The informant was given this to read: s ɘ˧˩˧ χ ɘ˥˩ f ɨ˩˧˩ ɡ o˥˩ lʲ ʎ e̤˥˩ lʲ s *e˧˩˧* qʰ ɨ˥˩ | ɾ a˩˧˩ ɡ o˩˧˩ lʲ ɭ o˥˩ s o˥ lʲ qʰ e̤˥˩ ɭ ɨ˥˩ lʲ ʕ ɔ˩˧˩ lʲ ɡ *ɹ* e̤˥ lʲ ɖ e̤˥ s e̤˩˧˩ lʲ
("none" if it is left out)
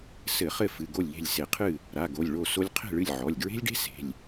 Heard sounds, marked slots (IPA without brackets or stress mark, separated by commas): e˧˩˧, ɹ